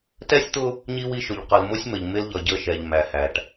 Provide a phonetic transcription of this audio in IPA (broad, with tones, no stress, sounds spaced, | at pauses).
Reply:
t ɛ˦ sʲ t̪ ʊ˦ | ɲ i˦ w i˦ ʃ ʊ˨ ʎ q ʌ˨ l m ʊ˦ sʲ m ə˨ ʎ m ɪ˦ l ʎ ʌ˨ ɟ ə˦˨ ʃ ɛ˨ ʎ m æ˨ h æ˨ ʈ